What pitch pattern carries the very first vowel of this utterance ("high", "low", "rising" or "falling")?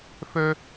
high